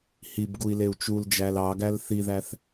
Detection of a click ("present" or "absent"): absent